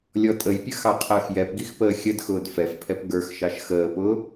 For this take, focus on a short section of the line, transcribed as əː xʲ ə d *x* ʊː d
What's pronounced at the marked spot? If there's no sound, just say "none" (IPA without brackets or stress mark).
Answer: x